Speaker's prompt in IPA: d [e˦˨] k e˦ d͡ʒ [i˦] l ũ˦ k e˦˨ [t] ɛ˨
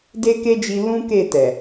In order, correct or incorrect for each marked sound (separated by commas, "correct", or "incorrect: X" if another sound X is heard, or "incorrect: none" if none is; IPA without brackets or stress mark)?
incorrect: e˦, incorrect: i˧, correct